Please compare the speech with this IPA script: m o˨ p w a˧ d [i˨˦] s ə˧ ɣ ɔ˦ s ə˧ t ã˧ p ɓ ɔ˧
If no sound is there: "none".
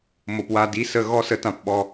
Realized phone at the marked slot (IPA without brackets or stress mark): i˨˦